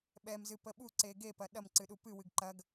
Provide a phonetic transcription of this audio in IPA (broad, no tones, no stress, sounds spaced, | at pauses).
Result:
ɓ ɛ m z ɨ p ə ɓ u ǀ e ɡ e p ɐ ɗ ɐ m ǀ ɨ ɗ u p ɨ w ɨ ɡ ǃ ɐ ɡ